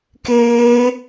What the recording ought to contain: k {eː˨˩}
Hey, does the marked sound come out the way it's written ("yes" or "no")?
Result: no